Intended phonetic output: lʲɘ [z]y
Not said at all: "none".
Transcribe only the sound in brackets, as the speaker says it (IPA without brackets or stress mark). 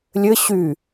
ɕ